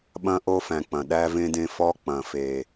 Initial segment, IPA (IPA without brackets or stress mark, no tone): ɓ